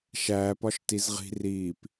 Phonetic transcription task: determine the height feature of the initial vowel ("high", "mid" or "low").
low